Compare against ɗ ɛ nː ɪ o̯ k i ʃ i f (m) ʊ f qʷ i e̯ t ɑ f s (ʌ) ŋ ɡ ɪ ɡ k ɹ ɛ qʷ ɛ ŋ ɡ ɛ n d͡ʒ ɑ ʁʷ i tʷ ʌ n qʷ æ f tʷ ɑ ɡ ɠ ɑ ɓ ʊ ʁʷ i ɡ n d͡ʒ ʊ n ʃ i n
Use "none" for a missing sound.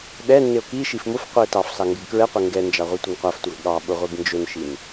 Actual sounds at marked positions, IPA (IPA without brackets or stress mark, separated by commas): m, ɑ